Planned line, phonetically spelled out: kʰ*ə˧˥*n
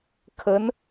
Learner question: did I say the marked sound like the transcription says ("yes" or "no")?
yes